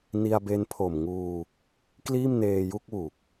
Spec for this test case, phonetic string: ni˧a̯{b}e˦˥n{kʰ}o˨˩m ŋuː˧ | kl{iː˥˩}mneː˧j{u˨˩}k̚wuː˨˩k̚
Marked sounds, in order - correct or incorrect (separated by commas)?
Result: correct, incorrect, correct, incorrect